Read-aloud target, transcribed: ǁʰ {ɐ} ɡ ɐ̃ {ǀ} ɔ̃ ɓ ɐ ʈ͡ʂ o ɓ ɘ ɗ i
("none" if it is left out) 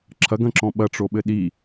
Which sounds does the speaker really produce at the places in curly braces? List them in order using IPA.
ɐ, ǁ

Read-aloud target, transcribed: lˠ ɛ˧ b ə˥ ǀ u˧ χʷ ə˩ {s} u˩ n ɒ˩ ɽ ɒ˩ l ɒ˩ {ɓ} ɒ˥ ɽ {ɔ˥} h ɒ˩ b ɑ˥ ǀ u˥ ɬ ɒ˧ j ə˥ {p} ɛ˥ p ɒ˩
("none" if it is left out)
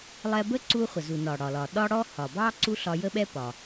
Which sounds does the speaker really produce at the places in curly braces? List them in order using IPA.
z, ɗ, ɔ˥, ɓ

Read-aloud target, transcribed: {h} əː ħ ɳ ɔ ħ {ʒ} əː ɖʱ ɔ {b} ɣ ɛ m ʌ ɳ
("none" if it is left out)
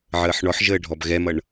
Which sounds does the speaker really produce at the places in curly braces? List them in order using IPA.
ʕ, ʒ, b

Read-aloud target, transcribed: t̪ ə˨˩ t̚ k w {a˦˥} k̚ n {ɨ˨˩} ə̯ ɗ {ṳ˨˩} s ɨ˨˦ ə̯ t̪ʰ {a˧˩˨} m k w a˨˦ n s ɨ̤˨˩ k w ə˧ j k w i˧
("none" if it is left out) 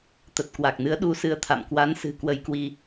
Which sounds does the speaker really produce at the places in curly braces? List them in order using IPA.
a˨˩, ɨ˨˦, u˨˦, a̰˧˨

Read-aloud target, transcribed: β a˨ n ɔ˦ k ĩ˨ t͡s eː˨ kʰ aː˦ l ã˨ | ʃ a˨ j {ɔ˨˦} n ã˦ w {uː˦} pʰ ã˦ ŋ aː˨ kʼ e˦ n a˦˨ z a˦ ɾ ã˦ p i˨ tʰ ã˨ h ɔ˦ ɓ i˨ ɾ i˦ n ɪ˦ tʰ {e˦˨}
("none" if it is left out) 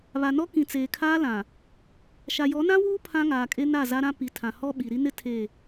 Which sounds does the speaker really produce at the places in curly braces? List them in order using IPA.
ɔ˨˦, uː˦, e˦˨

